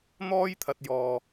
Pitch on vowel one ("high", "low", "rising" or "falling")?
high